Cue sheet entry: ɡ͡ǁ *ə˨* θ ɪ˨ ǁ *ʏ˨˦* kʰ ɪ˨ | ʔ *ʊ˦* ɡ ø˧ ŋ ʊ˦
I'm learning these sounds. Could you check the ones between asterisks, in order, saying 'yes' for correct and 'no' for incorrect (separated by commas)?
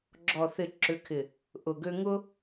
no, yes, no